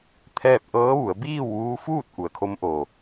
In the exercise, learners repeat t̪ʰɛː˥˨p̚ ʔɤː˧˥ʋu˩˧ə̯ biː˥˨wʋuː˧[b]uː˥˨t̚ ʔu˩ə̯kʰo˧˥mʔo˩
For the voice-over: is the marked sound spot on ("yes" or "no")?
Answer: no